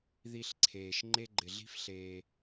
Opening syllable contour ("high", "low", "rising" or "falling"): low